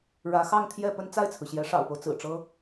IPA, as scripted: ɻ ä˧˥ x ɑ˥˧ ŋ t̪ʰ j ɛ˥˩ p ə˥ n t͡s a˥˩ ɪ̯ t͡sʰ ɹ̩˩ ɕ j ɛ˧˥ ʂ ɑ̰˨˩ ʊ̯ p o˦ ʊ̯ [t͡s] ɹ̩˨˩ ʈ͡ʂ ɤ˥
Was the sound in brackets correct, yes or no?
yes